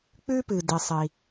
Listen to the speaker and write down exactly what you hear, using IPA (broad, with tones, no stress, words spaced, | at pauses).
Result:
k͡pʉ˥ pɨ˩di˩sˤi˩